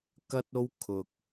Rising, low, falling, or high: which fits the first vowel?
high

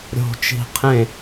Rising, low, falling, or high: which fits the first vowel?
low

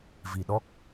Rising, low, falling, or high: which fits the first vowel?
low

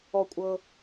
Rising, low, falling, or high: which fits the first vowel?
low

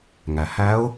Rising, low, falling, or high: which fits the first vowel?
low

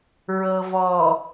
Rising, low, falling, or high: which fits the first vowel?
low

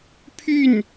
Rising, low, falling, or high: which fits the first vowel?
falling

